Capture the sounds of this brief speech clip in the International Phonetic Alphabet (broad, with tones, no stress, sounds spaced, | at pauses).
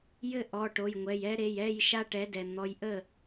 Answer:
j ɘ˥˩ ʔ ɔ˩˧˩ ʈ o˩˧˩ j ŋʷ ɛ˩˧˩ j ɛ˦ ɾ e˩˧˩ j ɛ˥˩ j ʃ a˦ ʈ ɛ˩˥ d ɛ˩ n̪ ɔ˩˧˩ j ʔ ə˥˩